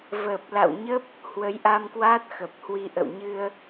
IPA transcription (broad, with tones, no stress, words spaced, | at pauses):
vəː˨˩p̚la̰˧˨wɲə˦˥p̚ | hwə˨˦jʔa˧mkwaː˦˥t̚ xə˨˩p̚hwi˧ ʔə̰˧˨wɲɨ˧ə̯